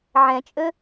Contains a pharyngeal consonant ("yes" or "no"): yes